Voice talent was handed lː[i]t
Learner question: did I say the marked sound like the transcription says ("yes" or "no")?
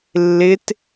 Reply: no